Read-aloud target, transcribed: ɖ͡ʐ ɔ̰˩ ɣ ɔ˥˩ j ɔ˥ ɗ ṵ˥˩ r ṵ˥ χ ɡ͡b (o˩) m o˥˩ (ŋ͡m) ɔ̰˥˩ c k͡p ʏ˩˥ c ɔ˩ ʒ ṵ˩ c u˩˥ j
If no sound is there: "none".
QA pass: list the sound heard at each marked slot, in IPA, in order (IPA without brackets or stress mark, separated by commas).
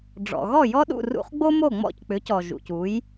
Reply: o˥, ŋ͡m